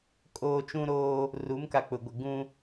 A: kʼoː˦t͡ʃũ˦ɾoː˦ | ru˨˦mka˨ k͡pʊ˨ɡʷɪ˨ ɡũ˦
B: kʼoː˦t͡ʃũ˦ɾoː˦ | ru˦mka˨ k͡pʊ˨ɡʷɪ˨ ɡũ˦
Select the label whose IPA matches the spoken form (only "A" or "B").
A